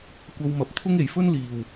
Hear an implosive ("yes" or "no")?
no